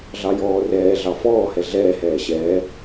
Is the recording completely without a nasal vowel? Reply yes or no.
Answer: yes